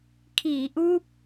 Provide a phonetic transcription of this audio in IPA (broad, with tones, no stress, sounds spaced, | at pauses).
kʰ iː˩˦ ʔ uː˦˥ p̚